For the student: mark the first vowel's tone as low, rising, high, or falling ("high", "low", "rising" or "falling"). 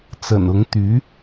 low